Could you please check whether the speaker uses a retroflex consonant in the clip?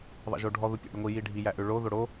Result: yes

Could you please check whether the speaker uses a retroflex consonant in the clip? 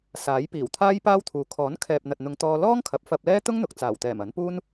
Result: no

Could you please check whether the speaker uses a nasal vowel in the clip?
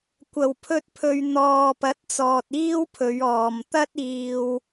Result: no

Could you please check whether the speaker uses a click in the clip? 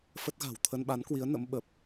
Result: no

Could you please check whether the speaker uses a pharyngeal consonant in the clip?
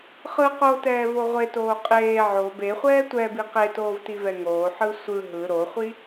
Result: yes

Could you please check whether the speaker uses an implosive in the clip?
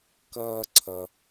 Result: no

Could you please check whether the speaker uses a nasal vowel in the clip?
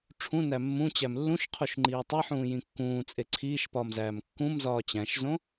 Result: yes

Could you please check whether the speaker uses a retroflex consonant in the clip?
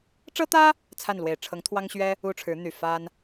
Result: yes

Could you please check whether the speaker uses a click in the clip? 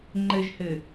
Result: yes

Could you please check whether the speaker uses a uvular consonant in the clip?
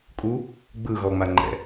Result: no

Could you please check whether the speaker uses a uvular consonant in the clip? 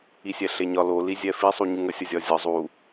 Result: no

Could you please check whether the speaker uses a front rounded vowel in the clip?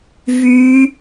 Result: yes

